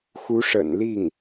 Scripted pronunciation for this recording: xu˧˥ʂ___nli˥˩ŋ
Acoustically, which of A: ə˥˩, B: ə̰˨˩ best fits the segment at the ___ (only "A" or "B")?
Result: B